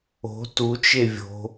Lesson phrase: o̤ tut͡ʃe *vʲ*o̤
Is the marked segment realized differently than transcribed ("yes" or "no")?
no